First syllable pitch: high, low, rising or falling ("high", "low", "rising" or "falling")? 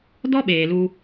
high